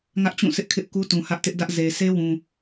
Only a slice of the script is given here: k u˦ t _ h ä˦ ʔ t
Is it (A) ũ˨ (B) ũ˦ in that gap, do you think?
A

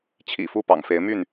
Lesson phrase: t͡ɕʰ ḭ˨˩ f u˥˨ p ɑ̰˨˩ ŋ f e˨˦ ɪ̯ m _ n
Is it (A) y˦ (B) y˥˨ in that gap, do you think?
B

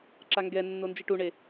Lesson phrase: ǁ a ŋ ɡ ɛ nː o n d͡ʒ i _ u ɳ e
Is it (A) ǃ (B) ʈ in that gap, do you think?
B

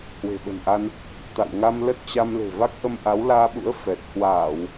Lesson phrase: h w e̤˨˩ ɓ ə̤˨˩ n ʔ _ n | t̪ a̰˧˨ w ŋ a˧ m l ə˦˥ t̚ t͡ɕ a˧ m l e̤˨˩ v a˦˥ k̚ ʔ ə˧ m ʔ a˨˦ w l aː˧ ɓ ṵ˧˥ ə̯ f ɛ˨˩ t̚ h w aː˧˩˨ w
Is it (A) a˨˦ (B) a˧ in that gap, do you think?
B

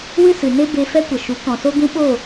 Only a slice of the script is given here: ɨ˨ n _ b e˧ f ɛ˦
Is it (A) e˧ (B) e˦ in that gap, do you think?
B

